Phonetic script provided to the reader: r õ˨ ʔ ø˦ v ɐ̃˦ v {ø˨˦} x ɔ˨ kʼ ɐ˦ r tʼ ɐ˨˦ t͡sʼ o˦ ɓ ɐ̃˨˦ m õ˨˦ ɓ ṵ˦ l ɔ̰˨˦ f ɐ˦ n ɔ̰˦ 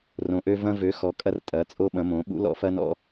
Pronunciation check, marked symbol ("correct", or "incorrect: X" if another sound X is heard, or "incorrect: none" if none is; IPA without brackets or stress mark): correct